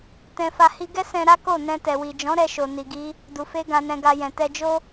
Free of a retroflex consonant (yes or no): yes